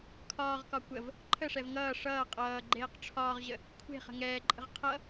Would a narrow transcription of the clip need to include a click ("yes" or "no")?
yes